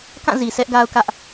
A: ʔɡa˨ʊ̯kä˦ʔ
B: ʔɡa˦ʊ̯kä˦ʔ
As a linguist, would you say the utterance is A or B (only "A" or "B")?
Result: B